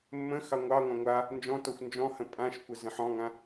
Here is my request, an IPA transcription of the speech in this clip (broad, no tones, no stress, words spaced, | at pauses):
mːə̃ xɑŋʷɑŋʷã ŋʷa | nd͡ʒɔ̃tɔxʷ nd͡ʒɔ̃hə̃ pʼãʃkʷə zə̃ħɔ̃ŋã